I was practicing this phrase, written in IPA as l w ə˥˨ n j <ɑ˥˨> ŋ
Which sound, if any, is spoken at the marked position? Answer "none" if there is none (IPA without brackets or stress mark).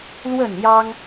ɑ˦